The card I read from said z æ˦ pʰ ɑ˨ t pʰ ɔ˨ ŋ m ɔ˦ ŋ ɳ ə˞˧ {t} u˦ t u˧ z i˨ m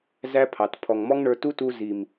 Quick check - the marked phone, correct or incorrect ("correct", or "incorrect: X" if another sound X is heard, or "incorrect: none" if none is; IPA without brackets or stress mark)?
correct